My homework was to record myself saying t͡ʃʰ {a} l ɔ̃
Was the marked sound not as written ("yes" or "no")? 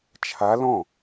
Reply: no